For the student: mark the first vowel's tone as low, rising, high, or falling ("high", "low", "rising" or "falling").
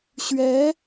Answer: rising